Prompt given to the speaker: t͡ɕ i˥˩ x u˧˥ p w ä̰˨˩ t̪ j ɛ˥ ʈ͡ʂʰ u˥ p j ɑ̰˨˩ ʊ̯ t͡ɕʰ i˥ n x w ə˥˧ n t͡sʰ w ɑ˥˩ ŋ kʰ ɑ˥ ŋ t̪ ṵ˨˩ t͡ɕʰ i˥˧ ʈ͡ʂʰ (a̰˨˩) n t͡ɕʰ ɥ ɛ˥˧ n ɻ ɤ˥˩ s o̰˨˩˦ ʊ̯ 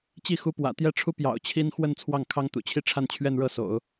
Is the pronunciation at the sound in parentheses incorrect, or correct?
incorrect: a˥˧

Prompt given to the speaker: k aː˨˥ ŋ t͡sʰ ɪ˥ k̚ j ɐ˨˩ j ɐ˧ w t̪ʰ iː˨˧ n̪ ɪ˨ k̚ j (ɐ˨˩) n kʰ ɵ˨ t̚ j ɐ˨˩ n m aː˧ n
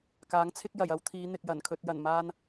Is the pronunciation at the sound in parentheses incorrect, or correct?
correct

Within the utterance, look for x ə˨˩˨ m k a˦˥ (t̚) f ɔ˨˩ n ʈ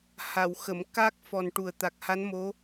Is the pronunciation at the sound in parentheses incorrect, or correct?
incorrect: k̚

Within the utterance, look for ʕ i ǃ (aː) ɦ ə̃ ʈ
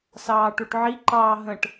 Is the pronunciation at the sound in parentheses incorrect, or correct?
incorrect: ɑː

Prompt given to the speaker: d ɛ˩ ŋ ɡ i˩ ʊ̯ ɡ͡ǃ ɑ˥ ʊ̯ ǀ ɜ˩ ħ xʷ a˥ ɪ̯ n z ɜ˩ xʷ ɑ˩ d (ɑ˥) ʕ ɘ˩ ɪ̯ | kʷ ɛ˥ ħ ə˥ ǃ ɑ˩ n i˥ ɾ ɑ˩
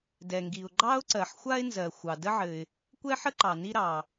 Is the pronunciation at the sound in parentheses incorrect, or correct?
incorrect: ə˥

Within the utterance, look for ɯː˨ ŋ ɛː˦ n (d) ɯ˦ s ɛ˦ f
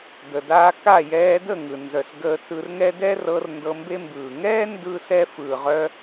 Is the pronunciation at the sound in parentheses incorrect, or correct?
correct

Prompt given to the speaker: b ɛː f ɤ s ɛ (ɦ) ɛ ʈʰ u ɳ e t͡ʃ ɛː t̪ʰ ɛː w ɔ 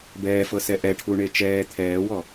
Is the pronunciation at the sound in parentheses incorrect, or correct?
incorrect: ʔ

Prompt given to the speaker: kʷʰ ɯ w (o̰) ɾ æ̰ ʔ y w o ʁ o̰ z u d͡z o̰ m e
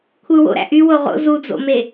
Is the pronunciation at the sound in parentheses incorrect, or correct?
correct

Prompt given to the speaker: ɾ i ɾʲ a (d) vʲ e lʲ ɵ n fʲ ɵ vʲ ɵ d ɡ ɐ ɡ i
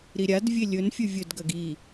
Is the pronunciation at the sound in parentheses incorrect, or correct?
correct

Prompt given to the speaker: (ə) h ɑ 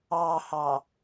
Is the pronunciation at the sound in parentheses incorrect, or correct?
incorrect: ɑ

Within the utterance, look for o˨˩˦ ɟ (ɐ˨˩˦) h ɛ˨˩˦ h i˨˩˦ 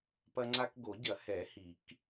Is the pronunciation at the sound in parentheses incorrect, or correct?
correct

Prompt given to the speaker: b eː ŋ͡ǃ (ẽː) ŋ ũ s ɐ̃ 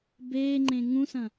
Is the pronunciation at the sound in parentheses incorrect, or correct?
incorrect: ẽ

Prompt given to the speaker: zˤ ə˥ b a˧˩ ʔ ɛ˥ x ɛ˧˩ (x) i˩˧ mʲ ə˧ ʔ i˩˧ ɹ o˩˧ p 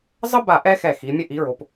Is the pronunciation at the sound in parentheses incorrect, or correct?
correct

